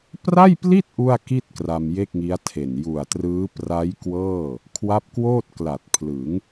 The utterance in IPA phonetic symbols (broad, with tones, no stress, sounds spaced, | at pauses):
p r a˥˩ j p l i˥˩ t̚ ʔ u˥˩ a̯ k i˥˩ t̚ k r a˧ m j e˥˩ k̚ ŋ i˦˥ a̯ tʰ e˨˩ n j u˨˩ a̯ t r ɯː˦˥ p r a˦˥ j k w ɤː˥˩ | kʰ w a˦˥ p̚ k w oː˥˩ t̚ k l a˨˩ t̚ pʰ l ɯ˩˦ ŋ